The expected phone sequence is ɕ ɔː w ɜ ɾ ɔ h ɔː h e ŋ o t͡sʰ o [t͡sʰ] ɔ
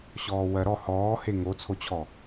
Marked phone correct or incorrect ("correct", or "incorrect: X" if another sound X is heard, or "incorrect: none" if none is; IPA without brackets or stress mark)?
incorrect: t͡ɕʰ